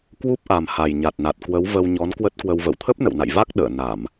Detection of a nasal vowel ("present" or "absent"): absent